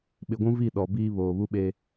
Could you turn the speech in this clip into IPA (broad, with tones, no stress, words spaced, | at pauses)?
ɓɪ˨ɡʷũ˦vi˦˨ ɗɔ˨biː˦ βoː˨βu˦ɓeː˦